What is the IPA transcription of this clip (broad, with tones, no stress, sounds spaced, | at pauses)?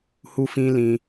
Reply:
h u˦ f ĩ˦ l ĩ˦